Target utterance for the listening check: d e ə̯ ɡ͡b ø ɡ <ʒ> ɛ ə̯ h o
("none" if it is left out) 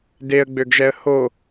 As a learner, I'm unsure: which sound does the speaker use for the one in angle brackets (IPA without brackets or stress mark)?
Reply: ʒ